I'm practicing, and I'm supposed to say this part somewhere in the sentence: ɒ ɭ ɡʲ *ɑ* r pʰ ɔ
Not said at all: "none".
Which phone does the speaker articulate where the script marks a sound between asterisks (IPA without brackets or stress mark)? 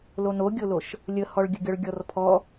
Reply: ɔ